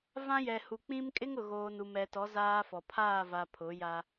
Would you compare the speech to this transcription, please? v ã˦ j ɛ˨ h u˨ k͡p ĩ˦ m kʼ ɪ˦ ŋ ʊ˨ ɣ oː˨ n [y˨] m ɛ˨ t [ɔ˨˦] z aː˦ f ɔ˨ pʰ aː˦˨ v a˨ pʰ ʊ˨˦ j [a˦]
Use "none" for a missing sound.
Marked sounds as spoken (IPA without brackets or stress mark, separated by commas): u˨, ɔ˨˦, a˦